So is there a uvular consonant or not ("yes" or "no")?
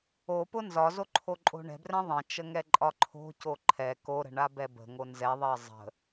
no